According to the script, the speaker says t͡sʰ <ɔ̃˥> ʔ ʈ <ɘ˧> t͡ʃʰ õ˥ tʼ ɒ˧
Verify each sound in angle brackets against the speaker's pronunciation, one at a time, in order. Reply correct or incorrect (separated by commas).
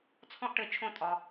correct, correct